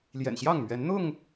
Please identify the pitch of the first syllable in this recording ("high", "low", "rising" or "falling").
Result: low